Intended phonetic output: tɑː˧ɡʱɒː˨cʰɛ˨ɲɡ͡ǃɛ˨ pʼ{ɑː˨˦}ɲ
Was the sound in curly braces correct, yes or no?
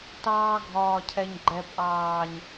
no